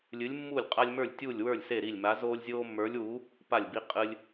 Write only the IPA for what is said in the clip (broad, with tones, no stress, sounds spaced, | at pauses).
lʲ ɨ˨˥ lʲ mː uː˥˩ lʲ qʼ a˦ lʲ m ə˞˥˩ lʲ tʲ uː˥˩ lʲ w ə˞˥˩ lʲ s e˥˩ ɾ i˥˩ lʲ m a˨˥ z oː˦ lʲ zʲ oː˦ mː ə˞˨˥ lʲ w u˨˥ | p a˥˩ lʲ b i˦ qʼ ɨ˦ lʲ